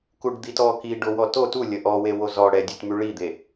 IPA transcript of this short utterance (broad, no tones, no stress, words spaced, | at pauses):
kuɖd̪itɔ kiɖo wɔto tu lʲəʔɔwe wozɔ ɽɛdʲutmy ɭid̪e